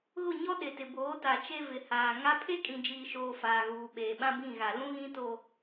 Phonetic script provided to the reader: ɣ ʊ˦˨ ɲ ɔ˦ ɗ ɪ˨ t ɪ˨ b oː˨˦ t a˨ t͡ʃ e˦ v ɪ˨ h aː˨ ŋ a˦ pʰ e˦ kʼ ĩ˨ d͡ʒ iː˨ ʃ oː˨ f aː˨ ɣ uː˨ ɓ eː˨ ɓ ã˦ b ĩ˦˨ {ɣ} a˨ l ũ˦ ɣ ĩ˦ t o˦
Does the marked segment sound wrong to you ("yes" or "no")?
no